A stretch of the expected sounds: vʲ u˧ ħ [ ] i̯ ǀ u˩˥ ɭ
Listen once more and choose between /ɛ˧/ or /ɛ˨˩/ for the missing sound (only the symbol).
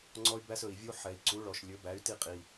ɛ˨˩